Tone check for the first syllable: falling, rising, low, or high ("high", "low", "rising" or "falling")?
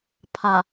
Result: low